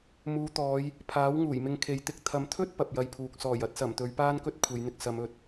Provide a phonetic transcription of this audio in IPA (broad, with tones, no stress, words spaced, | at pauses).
muː˨˧t̪ɔː˨˧j | pʰaː˨˥wŋuː˨˩jmɪ˧ŋ kʰe˨˧jt̪ɪ˧k̚ t̪ʰɐ˨˧mt̪ʰɵ˥t̚ pɐ˨p̚jɐ˧jpʰuː˨k̚ sɔː˨˩jɐ˧t̚sɐ˨˩mt̪ɵ˨˧ɥ paː˥nkɵ˥t̚ kʷʰe˨˧jn̪ɪ˧k̚ sɐ˨˧mɵ˨t̚